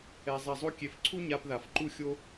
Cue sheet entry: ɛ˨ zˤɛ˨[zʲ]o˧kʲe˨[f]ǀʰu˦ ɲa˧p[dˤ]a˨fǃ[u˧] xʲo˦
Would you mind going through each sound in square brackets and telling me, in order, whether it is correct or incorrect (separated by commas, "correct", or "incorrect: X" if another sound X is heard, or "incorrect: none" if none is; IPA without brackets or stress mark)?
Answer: incorrect: zˤ, correct, incorrect: ð, incorrect: u˦